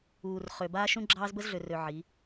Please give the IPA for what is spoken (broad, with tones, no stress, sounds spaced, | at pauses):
uː˨ r χ ø˨ b aː˦ ʃ ũ˦ ɡ͡ǁ ɑː˦ z b ə˦ z ɮ ø˨ r ø˨ ʕ i˨˦